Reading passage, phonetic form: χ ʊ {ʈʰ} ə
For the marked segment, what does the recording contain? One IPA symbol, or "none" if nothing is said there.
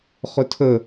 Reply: tʰ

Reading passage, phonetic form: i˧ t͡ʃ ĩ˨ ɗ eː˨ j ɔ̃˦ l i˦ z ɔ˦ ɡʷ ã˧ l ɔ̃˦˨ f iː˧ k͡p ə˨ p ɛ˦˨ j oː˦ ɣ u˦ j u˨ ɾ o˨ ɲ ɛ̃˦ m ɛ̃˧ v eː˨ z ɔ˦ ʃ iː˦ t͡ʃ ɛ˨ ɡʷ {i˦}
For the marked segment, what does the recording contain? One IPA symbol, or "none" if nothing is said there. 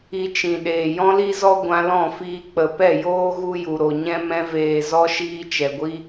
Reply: i˦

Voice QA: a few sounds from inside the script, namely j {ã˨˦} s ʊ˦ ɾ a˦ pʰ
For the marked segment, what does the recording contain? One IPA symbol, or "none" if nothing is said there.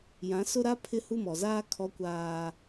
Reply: ã˨˦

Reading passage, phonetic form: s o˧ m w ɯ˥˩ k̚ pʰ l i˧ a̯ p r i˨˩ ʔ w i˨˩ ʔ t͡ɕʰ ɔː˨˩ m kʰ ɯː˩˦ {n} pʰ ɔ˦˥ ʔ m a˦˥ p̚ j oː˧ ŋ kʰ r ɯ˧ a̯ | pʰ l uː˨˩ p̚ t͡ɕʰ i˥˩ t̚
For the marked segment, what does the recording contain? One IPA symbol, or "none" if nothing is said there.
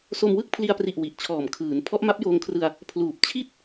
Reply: n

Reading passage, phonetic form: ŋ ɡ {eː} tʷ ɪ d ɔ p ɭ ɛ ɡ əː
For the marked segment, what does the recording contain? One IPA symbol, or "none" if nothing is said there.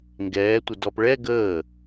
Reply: ɛː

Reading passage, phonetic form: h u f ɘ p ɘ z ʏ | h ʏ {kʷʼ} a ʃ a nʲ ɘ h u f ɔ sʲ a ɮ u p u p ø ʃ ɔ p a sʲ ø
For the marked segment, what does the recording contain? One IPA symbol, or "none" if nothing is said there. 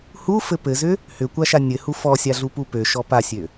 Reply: kʷ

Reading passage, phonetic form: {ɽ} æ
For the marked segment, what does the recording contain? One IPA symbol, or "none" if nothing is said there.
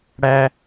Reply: ɽ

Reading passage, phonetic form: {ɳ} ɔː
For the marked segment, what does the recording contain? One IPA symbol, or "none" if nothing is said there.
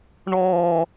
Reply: ɳ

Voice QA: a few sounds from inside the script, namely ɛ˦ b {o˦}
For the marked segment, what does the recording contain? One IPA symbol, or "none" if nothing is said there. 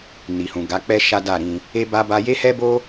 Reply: o˦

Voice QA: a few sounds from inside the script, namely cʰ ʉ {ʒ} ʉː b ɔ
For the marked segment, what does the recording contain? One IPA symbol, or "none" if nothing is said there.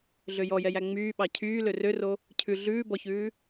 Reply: ɮ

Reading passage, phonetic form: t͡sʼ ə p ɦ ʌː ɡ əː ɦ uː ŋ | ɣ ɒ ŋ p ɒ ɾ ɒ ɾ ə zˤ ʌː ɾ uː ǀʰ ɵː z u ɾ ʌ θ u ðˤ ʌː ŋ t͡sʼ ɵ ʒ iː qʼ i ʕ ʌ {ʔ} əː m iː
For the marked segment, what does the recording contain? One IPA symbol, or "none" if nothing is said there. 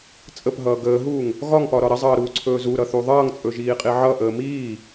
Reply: ʔ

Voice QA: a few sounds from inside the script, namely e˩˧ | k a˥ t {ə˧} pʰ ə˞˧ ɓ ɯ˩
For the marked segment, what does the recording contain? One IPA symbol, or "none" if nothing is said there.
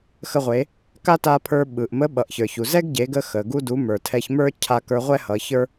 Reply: a˧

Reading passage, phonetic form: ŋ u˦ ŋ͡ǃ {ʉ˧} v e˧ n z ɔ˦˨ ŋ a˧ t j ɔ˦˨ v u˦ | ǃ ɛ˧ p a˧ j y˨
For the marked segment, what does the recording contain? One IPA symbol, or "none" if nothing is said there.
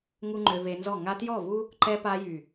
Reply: ø˧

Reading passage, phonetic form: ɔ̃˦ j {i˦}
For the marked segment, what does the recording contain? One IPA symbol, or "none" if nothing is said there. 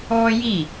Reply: i˦˨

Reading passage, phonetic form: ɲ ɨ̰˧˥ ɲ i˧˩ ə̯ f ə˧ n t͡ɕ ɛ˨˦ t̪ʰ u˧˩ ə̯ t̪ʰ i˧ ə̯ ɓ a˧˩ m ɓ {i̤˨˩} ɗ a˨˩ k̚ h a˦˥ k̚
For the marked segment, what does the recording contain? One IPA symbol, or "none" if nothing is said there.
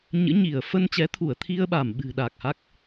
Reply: ɨ̤˨˩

